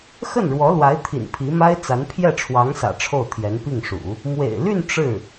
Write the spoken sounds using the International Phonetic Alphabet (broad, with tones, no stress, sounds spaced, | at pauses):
x ə˥˩ n ɻ w ɔ˧˥ l w a˧˥ ɪ̯ t̪ʰ ḭ˨˩ n pʰ i˧˥ m a˥ ɪ̯ t͡s a˧˥ n pʰ j ɛ˥˩ ʈ͡ʂʰ w ɑ˧˥ ŋ s ä̰˨˩ ʈ͡ʂʰ o˥˩ ʊ̯ t̪ʰ j ɛ˧˥ n p i˥˩ ŋ ʂ ṵ˨˩˦ | m w ḛ˨˩ ɪ̯ l y˥˧ n ʈ͡ʂ ɻ̩˥˩